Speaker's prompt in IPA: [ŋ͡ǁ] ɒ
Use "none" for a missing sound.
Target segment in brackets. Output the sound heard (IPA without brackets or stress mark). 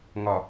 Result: ŋ